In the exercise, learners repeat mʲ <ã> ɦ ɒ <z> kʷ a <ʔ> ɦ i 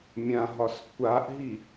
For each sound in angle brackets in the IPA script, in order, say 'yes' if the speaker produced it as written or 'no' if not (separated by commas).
yes, no, yes